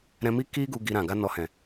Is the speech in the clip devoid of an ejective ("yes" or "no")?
yes